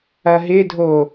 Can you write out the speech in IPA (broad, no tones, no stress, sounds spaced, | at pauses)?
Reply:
ɐ ɦ ɪ dʱ o